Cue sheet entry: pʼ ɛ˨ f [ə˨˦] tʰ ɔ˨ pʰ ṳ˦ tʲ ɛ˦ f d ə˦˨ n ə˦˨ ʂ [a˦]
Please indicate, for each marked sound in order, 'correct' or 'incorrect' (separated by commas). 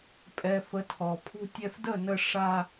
correct, correct